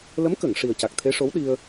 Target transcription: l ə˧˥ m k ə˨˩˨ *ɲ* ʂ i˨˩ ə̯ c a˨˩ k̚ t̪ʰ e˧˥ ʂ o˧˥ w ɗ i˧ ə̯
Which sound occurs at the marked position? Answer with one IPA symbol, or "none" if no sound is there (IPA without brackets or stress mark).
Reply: ŋ